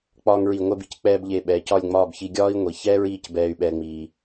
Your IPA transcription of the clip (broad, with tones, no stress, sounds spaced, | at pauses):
k͡p ɒː˧ ŋ ɹ i˧˩ ŋʷ ɛ˥˧ b i˥ c k͡p ɛː˥ b ʎ e˧ ɓ ɛː˩˧ c ɒ˥˧ lʲ ŋ͡m ɒː˥˧ b ç i˧ ɡʲ ɒː˥ i̯ ŋʷ i˩˧ ç ɛː˥ ɹ iː˥˧ c b ɛː˧ y̯ ɓ ɛː˥ ŋ͡m iː˧